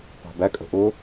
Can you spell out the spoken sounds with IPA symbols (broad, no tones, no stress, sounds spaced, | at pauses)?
t̪ ɑ̤ b æ kʼ ə̤ ʔ ʊ